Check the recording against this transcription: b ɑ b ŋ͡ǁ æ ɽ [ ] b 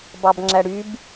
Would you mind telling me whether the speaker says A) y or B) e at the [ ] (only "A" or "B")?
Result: A